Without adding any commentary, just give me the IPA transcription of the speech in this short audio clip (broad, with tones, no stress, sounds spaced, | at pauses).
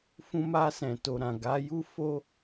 f ũ˧ m a˧ s ɛ̃˨ t o˨ ɾ ã˨ ɡ a˨˦ j u˦ f o˦